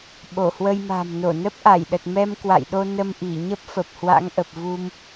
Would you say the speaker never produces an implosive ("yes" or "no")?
no